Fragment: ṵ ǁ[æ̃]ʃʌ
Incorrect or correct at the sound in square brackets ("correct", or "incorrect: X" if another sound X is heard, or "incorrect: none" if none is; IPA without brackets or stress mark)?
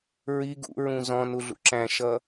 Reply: correct